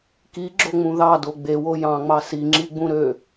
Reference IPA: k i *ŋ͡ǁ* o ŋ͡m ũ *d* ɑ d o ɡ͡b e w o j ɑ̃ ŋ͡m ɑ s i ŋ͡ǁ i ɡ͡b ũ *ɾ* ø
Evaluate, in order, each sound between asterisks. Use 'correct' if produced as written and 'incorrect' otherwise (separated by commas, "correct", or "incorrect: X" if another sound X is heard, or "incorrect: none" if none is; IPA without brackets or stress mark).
incorrect: ɡ͡ǁ, incorrect: ð, correct